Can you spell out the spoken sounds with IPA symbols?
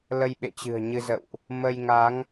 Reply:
lə˧jɓḛ˧˨t͡ɕɨ̤˨˩ə̯ ɲɨ˧zə̰˧˨wʔ | mə˧jŋa˨˦ŋ

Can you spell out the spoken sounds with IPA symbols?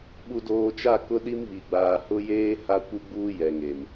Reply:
ɓu˨doː˨t͡ʃa˦˨ kʊ˦ɗi˦mβi˨ɡ͡baː˨ hʊ˦jeː˦ ha˦kʷi˦ɡ͡buː˦ jɛ˨ŋe˨m

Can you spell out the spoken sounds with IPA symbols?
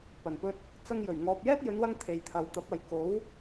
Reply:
pɐ˨˩npɵ˧t̚ | t͡sɐ˧ŋjɵ˨˩ɥ ŋɔː˨p̚jɛː˥t̚jɵ˨˧nwɐ˧ŋ t̪ʰe˨jt̪ʰɐ˨wt̪ɐ˨˥p̚ɐ˨j ko˨˥w

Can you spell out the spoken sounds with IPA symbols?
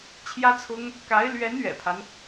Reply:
t͡ɕʰjä˥t͡sʰʊ˥ŋ | ka˧˥ɪ̯ lɥɛ˧˥n ɥɛ̰˨˩pʰa˦n

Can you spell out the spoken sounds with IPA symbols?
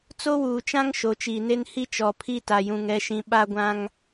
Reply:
t͡so˦wuː˨t͡ʃã˦ŋ ʃo˨˦t͡ʃiː˨ne˦nhi˦ t͡ʃɔ˨pʰi˦ ta˨jũ˨ŋɛ˨˦ʃĩ˨˦ ɓa˦ɡʷã˦ŋ

